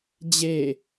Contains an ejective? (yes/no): no